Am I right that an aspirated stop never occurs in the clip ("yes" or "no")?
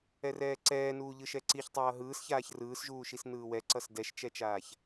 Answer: yes